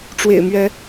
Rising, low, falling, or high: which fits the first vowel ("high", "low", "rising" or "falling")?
low